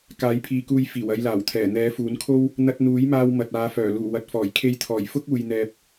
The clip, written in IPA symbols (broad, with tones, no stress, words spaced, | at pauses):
kaː˨˥jpʰiː˨kuː˧j fiː˨˩wɐ˧jlaː˨˩wt̪ʰɛː˨˩ n̪ɛː˨˥fuː˨˥nkʰo˥w | n̪ɐ˧t̚n̪uː˨˥jmaː˧w mɐ˨t̚aː˨˧fœː˨˩ luː˨˩wɐ˨t̚fɔː˨˩j kʰe˧jt̪ʰɔː˨˩j fʊ˥k̚uː˨jn̪ɛː˨p̚